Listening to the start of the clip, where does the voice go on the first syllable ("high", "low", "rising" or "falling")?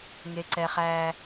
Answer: high